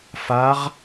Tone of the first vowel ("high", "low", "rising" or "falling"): rising